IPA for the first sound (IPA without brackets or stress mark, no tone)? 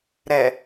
ɾ